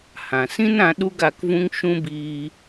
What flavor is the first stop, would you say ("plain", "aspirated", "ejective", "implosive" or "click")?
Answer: implosive